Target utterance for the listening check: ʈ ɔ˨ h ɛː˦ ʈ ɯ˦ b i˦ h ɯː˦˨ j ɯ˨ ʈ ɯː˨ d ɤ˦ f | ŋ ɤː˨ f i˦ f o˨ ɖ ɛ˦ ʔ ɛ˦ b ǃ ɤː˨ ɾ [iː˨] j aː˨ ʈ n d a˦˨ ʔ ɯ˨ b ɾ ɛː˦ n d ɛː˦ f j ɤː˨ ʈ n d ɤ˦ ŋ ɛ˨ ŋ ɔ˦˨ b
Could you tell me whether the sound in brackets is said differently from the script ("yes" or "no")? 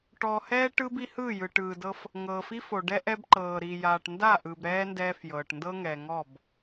yes